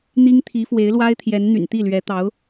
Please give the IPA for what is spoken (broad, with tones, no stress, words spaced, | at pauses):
n̪i˥ŋt̪ʰi˧˥ fwe˧˥ɪ̯lwa˥ɪ̯t̪ʰjɛ˧˥n n̪y̰˨˩nt̪i˥˩lɥɛ˧˥t̪ɑ˧˥ʊ̯